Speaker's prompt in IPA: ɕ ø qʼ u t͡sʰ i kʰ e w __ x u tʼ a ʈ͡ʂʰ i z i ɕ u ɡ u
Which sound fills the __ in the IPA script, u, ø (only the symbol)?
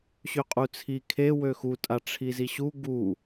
ø